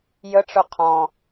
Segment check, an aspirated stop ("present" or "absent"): present